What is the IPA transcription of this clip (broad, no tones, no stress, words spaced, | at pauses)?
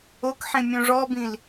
okħĩ mʲõʐɔbĩl